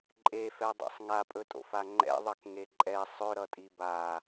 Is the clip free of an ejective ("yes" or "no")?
no